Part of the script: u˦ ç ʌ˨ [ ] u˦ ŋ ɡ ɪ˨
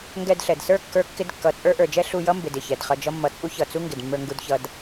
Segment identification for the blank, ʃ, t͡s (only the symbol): t͡s